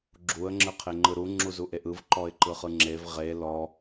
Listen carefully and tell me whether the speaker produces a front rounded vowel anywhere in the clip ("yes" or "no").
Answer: no